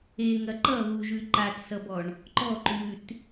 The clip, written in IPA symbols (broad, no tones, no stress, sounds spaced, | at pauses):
e ŋ ɐ ǃ ʌ ɣ u ʒ ʉ ǃ a t s ʌ b ɔ ɳ | ǃ ɔ ǃ ʉ t